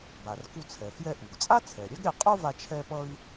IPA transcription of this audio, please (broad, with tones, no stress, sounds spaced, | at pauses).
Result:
b a˩ r k u˧ t͡sʰ ɛ˩ f j ɛ˧ ʔ u˩ ɡ t͡sʼ a˥ t͡sʰ ɛ˩ ɾʲ ɛ˥ ɡ ɾʲ a˧ qʼ o˥ v a˧ t͡ʃʰ ɛ˥ p ʌ˥ i̯